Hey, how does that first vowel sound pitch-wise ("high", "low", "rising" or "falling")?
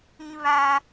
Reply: high